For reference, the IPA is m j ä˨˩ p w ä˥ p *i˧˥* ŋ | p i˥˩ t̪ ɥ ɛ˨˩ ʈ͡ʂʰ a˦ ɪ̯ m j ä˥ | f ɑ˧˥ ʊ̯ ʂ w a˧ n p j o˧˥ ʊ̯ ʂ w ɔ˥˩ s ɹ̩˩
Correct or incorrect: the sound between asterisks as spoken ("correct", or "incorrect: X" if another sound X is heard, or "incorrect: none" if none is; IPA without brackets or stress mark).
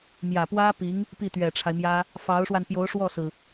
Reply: correct